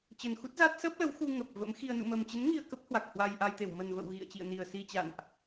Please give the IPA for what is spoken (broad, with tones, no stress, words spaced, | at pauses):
t͡ɕə˨˩nxu˦˥t̚za˦˥t̚ sə˦˥p̚lə˨˦w xu˧ ŋə˨˩p̚və̰˧˥mxi˧ə̯ nṵ˧˨mə˨˩mt͡ɕə˨˦n ŋi˧ə̯kə˦˥p̚ hwa˨˩k̚hwa˧jʔa˧jt̪e˧˩w mə˨˩nvə̰˧˨w ɣḭ˧˨ə̯ t͡ɕḭ˧˨ə̯ni˨˩ə̯ si˧t͡ɕa̰˧˨nʔ